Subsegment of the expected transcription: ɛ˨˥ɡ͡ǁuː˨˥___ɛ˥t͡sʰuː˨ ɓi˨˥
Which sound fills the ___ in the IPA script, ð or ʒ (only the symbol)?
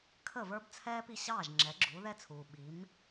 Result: ð